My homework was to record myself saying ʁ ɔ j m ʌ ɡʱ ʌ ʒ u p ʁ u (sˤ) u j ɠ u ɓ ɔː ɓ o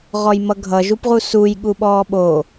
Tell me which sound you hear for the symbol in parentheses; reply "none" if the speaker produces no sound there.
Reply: s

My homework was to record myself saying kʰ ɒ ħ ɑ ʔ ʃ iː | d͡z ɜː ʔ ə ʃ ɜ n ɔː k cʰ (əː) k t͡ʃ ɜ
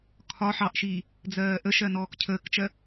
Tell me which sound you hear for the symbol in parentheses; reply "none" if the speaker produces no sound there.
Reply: əː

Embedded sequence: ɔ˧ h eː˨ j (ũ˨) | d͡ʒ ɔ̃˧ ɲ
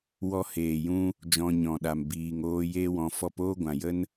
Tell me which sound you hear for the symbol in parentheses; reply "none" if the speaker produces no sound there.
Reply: ũ˦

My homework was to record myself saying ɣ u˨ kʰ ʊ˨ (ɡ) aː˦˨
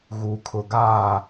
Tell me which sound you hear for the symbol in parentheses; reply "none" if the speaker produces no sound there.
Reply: ɡ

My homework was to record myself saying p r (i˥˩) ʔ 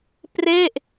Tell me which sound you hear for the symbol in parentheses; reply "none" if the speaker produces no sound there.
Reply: e˥˩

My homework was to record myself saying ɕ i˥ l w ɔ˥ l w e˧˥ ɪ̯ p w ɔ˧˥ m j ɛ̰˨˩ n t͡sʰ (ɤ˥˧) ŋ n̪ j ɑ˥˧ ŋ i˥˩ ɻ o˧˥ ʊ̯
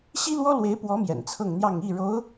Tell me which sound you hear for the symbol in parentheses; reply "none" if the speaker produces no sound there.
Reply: ɤ˥˧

